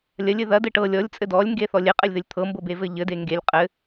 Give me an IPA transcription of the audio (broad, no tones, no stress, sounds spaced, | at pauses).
lʲ ɐ lʲ ɘ ð ɐ d ɘ ʈ ɤ lʲ ɔ lʲ t͡sʼ ɘ d ɔ lʲ ŋ ɡ e θ ɔ lʲ e qʼ ɘ lʲ ð ɘ lʲ t̪ʰ ɤ m b ɤ b e v ɘ ʎ ɘ d e ŋ ɡ e lʲ qʼ ɘ